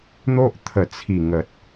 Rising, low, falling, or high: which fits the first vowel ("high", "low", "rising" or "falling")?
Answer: high